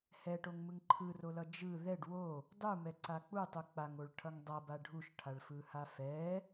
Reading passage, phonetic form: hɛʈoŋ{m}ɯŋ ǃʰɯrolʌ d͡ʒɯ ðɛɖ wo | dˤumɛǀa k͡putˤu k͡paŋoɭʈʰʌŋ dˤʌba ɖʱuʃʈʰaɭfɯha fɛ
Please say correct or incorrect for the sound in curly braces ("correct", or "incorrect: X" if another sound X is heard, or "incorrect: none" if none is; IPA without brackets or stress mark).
correct